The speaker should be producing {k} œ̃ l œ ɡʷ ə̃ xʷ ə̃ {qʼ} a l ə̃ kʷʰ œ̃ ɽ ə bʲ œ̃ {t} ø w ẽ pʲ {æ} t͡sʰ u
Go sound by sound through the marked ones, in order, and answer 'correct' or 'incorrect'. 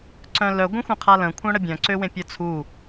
incorrect: ǀ, incorrect: qʰ, incorrect: ǀ, incorrect: œ

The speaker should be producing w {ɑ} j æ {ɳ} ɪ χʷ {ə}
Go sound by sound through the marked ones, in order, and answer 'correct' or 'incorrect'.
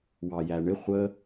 correct, correct, correct

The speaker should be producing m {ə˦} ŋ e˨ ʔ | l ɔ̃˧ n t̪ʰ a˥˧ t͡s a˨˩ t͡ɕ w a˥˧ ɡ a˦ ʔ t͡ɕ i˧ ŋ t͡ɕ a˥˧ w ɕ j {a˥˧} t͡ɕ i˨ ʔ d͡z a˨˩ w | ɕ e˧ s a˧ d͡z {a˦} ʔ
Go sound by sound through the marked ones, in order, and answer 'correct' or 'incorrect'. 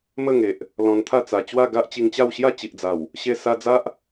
incorrect: ə˥˧, correct, correct

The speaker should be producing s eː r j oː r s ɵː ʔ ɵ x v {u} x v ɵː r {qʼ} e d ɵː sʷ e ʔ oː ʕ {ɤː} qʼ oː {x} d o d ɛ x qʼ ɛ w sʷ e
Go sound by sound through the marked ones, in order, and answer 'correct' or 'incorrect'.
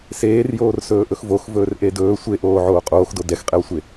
incorrect: o, incorrect: ʔ, incorrect: oː, correct

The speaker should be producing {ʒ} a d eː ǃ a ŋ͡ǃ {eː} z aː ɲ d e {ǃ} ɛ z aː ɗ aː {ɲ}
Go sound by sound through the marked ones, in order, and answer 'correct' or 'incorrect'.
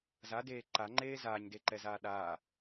incorrect: z, correct, correct, incorrect: none

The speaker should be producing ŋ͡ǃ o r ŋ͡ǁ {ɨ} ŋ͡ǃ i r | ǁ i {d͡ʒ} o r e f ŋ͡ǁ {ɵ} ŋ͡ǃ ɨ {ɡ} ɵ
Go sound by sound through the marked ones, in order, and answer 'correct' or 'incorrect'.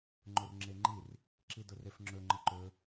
incorrect: e, incorrect: d, correct, incorrect: ǃ

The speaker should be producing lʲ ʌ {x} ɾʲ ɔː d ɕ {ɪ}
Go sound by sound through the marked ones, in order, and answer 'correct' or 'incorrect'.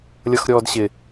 correct, correct

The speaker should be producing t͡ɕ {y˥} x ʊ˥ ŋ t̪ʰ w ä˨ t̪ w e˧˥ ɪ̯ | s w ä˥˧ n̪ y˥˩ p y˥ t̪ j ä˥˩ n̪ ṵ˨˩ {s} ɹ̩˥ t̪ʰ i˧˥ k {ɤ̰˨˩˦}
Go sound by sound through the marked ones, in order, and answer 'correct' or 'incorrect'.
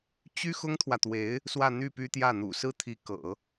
correct, correct, correct

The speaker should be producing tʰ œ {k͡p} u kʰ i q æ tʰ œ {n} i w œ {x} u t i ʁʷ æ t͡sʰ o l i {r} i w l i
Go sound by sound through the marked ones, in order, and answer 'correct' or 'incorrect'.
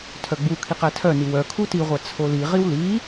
incorrect: ɡ͡b, correct, incorrect: kʰ, incorrect: ʁ

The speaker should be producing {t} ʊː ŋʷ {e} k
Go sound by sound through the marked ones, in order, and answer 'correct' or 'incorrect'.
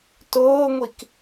correct, incorrect: i

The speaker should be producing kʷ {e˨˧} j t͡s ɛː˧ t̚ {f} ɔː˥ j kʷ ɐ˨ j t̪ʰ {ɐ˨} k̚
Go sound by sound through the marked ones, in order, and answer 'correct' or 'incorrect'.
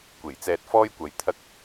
incorrect: e˨˩, correct, incorrect: ɐ˥

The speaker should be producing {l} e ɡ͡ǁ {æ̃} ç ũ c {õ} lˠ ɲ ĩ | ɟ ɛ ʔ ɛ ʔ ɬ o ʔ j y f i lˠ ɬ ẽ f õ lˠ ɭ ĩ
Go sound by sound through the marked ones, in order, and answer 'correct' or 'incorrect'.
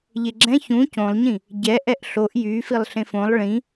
incorrect: ʎ, incorrect: ɛ̃, correct

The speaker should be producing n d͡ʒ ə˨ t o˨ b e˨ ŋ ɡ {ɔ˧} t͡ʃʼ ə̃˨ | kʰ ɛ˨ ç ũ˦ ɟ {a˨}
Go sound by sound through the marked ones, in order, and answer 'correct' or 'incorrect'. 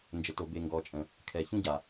incorrect: ɔ˨, correct

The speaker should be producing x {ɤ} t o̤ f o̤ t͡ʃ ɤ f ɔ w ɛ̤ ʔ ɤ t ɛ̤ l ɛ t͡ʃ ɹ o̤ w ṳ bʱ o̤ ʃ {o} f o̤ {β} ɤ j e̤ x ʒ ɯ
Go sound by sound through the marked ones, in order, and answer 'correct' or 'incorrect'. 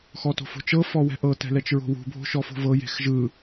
incorrect: ɔ, incorrect: ɔ, incorrect: v

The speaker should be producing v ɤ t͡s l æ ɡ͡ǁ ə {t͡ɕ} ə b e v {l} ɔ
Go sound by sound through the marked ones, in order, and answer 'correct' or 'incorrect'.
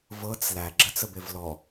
incorrect: t͡s, correct

